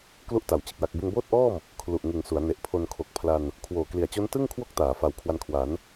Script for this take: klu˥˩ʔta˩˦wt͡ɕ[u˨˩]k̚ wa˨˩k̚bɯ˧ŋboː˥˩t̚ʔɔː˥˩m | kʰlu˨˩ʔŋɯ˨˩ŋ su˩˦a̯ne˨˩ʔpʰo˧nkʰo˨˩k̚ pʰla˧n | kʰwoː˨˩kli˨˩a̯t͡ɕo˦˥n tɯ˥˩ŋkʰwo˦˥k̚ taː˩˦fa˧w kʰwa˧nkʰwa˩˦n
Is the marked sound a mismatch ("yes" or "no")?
yes